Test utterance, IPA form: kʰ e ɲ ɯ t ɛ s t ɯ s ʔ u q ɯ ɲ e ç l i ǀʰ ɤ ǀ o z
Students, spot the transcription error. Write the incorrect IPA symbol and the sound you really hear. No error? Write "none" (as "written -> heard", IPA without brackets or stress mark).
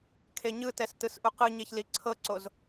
none